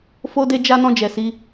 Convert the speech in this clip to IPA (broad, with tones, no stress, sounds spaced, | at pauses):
f o˧ d e˧ d͡ʒ a˧ n ɔ̃˧ d͡ʒ ɛ˨ s i˧